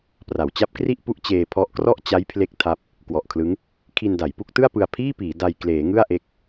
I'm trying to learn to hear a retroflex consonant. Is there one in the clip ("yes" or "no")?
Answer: no